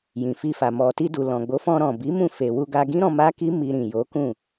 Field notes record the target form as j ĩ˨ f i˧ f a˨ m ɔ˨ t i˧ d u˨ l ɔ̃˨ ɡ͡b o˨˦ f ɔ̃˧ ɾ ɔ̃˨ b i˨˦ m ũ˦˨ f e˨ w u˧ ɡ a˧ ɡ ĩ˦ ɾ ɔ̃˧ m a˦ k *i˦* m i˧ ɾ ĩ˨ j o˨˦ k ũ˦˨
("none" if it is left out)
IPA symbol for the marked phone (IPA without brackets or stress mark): i˦